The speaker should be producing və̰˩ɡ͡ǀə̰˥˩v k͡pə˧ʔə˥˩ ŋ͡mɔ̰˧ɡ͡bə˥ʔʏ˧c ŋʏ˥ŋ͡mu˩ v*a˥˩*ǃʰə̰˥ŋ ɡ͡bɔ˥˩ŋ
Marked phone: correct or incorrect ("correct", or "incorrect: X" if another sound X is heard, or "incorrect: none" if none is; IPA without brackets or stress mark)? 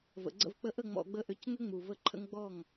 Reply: incorrect: ə˥˩